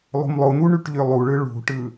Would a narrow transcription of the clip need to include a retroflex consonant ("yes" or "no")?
yes